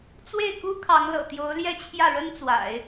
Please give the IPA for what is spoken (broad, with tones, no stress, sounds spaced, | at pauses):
t͡s w e˥˩ ɪ̯ k u˥ kʰ ɑ˧˥ ŋ l ɤ̰˨˩ t̪ j o˧˥ ʊ̯ l j ɛ˥˧ t͡ɕʰ j ä˥˩ ɻ ə˥ n t͡s w a̰˨˩˦ ɪ̯